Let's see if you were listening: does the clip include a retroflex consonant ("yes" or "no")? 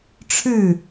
yes